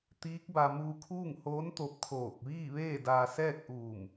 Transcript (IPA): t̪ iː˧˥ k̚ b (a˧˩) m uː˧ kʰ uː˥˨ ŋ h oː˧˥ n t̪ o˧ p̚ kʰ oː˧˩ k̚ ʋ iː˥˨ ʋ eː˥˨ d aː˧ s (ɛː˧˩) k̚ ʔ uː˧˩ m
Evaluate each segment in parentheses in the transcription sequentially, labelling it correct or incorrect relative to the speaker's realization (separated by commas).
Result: incorrect, incorrect